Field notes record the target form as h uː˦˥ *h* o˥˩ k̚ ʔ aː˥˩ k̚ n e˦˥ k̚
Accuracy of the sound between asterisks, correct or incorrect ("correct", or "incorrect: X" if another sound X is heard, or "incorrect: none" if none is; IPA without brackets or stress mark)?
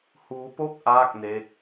incorrect: p